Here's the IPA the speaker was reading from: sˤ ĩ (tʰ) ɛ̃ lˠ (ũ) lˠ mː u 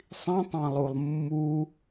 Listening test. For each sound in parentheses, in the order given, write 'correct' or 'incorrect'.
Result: incorrect: tˤ, incorrect: u

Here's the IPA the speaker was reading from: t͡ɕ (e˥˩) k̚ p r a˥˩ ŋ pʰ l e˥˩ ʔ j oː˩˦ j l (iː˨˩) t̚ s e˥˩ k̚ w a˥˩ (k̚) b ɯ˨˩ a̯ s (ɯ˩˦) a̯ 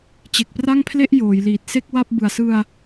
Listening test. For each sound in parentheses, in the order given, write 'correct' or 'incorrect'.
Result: incorrect: e˨˩, correct, incorrect: p̚, incorrect: ɯ˧

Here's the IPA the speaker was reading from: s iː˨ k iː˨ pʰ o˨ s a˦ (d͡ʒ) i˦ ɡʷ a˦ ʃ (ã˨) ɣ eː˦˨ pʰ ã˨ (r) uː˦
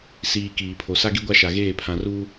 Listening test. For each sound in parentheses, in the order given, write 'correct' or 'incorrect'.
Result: incorrect: ɡ, incorrect: a˨, correct

